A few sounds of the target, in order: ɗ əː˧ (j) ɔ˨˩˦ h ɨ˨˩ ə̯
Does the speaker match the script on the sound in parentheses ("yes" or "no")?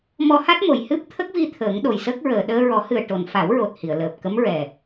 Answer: no